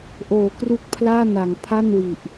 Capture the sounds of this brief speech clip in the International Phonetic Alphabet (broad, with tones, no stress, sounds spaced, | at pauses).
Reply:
ʔ oː˩˦ k r u˦˥ k̚ pʰ l aː˥˩ n a˩˦ ŋ pʰ a˥˩ n w i˨˩ ʔ